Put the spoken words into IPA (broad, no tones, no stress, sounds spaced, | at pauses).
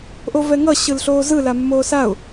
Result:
ʔ o v ɛ ŋ ʌ ɕ ɯ l ɬ oː z ɯ l a mː oː s a ʊ̯